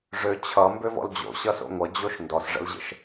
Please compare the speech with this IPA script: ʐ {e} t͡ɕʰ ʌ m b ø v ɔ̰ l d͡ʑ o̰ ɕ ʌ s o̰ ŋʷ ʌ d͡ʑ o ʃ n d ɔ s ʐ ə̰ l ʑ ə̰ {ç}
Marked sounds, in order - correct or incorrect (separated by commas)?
incorrect, incorrect